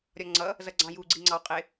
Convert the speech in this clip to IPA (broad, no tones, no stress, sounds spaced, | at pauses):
ɾʲ ɒ ŋ͡ǀ ʌ | z ʌ ɡ͡ǀ ɑ̃ j u ɡ͡ǀ i ŋ͡ǀ ɑ w qʼ ɪ